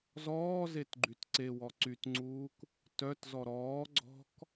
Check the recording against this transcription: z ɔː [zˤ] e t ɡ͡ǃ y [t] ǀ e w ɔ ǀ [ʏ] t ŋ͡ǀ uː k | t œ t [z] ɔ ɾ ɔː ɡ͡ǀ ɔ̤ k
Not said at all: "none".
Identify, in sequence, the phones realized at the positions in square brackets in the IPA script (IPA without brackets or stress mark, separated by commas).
z, t, y, z